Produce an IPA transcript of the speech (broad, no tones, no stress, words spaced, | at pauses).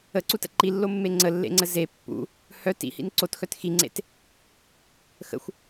əǀutə̰ ǃilːomːe ŋ͡ǀəlːḛŋ͡ǀə ze pːṵ | hœ tḭhḭn ǀotxœt xiŋ͡ǀḛt | xə̰xʷ